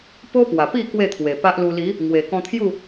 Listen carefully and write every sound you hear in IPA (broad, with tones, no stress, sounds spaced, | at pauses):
p o˦ p w a˨˩ p i˥˧ k w e˥˧ t̪ʰ w e˨˩ p a˦ ʔ l u˧ l i˨˦ | ŋ w e˨˩ k ɔ̃˧ t̪ʰ j u˥˧